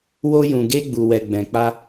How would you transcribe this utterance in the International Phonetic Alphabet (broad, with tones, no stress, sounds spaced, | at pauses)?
w o˧ j ũ˨ ɡ e˧ ɡ͡b u˨ w ɛ˨ ɡ͡b ɛ̃˨ k͡p a˧